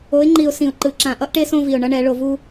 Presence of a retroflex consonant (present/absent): present